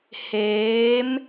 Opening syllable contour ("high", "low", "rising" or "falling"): rising